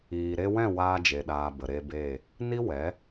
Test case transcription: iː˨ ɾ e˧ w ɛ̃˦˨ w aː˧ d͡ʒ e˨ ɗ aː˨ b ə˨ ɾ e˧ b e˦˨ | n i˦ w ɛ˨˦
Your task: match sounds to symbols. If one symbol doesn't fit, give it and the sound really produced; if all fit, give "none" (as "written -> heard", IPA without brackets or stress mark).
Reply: none